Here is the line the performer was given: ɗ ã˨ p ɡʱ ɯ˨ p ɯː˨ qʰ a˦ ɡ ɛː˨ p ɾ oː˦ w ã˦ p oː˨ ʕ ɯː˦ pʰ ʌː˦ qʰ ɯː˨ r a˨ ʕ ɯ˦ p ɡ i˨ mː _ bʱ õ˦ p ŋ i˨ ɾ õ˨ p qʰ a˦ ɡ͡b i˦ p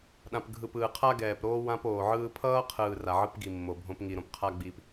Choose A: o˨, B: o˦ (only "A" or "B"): A